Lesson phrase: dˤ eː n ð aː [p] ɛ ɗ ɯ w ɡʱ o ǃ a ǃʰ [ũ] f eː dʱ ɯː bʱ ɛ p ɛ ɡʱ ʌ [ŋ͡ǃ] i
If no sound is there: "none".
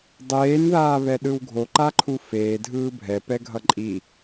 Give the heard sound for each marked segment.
β, u, ǃʼ

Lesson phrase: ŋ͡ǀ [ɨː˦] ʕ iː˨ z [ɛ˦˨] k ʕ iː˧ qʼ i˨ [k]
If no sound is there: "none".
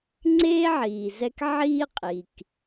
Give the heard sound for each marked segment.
eː˦, ɛ˧, k

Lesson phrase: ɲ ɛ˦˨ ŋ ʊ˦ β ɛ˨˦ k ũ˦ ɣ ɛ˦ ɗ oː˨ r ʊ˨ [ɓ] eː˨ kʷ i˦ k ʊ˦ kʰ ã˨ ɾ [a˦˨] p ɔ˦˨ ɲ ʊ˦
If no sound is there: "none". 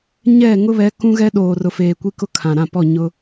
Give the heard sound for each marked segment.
f, ã˦˨

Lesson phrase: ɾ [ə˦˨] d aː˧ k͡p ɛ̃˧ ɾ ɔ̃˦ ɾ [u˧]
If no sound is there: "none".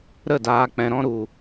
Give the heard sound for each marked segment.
ə˦˨, u˧

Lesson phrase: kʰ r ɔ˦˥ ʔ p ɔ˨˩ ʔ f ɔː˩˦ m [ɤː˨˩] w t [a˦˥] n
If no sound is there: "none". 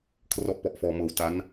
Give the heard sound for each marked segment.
ɤː˨˩, a˦˥

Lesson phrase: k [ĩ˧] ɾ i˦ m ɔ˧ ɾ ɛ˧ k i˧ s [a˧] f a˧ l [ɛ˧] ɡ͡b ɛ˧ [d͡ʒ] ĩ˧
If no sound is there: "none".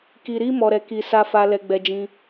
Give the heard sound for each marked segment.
i˧, a˧, ɛ˧, d͡ʒ

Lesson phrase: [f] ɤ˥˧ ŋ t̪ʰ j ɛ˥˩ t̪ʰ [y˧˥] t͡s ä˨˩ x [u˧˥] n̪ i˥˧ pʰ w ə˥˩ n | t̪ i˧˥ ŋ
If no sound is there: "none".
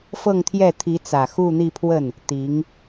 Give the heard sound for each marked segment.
f, i˧˥, u˥˧

